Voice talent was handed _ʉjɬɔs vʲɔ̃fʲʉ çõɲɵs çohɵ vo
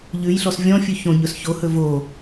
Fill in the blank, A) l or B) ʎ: B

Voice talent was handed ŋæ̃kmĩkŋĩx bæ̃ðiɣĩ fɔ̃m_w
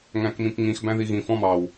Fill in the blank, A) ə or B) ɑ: B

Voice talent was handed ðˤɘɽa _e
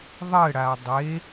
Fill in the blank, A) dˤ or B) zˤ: A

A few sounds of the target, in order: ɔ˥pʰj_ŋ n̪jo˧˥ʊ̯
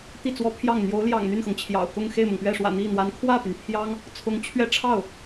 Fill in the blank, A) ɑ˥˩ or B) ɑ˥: A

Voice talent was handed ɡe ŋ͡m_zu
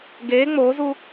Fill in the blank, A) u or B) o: B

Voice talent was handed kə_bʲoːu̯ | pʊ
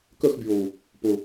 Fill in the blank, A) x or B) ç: A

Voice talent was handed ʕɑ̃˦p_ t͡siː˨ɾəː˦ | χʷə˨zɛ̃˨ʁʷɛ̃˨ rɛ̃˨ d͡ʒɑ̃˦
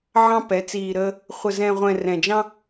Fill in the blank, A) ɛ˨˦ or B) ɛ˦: A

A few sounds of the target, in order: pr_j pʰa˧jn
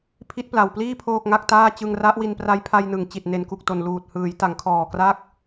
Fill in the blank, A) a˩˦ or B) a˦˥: B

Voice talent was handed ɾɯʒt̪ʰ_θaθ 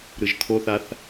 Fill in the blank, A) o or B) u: A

